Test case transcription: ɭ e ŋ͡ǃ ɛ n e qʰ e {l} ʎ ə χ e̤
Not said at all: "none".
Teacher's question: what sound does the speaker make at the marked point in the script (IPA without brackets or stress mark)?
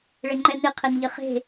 n